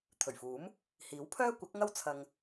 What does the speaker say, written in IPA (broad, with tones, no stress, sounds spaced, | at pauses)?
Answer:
t̪ʰ ɵ˨˩ ɥ f uː˨˥ m | h iː˨˥ w pʰ œː˥ kʷ ɐ˨˥ k̚ ŋ ɐ˥ w t͡sʰ ɐ˧ ŋ